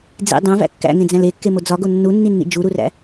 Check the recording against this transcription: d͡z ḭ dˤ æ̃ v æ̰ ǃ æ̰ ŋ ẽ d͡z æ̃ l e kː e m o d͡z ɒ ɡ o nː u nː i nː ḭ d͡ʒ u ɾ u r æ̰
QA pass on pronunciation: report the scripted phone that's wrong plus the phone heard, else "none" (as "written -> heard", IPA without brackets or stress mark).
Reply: ǃ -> kː